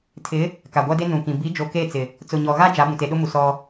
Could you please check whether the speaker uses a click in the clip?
no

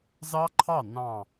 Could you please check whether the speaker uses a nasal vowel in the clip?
yes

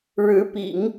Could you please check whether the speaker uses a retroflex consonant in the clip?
yes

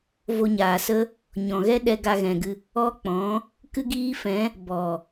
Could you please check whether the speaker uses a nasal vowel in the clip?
yes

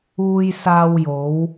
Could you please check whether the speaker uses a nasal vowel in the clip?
no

